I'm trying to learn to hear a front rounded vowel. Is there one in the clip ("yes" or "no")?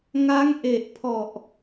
no